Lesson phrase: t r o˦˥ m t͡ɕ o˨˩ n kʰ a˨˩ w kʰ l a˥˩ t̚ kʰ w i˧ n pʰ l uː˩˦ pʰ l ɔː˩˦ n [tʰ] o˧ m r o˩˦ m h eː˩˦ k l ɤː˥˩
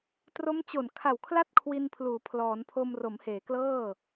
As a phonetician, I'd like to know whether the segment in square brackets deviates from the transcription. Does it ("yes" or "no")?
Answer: yes